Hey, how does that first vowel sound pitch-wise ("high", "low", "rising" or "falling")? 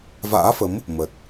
rising